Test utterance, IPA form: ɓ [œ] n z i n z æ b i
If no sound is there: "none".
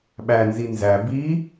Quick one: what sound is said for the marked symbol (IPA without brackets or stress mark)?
æ